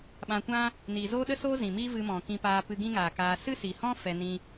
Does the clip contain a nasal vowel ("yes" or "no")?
yes